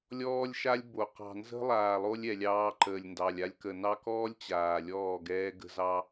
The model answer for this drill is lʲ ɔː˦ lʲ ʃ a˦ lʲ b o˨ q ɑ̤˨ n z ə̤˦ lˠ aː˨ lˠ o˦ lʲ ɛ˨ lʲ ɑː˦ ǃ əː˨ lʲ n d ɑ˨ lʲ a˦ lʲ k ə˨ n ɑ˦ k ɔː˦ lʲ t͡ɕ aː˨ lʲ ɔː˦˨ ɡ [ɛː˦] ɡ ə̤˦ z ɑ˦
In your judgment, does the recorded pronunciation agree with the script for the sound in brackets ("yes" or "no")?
yes